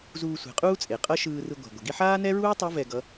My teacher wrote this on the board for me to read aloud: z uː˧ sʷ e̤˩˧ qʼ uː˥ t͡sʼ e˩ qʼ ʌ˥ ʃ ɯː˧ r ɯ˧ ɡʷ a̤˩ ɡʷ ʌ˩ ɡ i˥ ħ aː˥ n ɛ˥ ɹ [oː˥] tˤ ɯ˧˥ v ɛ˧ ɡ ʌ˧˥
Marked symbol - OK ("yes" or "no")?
no